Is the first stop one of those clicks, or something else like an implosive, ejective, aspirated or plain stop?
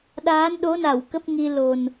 implosive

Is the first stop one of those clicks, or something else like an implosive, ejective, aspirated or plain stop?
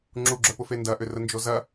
click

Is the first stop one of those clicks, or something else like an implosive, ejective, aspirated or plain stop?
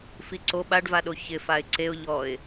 click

